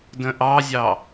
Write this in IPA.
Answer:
d ə̃ ʔ ɑ zʲ ɑ

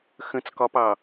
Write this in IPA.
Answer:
x ə̃ t͡s k ɒ p ɑ

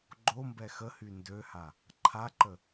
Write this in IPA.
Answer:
ɡ͡ǃ o m b ɛ x ə h y n d ø h a | ǃʰ a ǃ ə

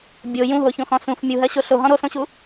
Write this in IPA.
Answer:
bʲ o j ũ ɦ o ç õ x ɔ̃ s ũ f mʲ u ɦ ɜ ɕ o ɬ o ɦ ɔ̃ ɾ o s õ ɕ u

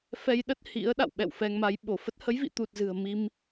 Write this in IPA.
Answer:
f ɛ˧ j ɗ ə˦˥ t̚ h ḭ˧˥ ə̯ ɗ a̰˧˨ w ɓ ɛ̰˧˨ w f ɛ˧ ŋ m a˨˦ j ɓ o˧˩ f ə˦˥ t̚ h ə˨˦ j v ḭ˧˨ t̪ u˨˩ t̚ z ɨ̤˨˩ ə̯ m i˧ m

